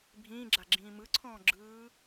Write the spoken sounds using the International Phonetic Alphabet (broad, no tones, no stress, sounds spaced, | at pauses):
bʱ ĩː ɡ͡ǁ a ɡ͡ǁ ĩː m ɯ ǀʰ ɔ̃ː ɡ͡ǁ ɯː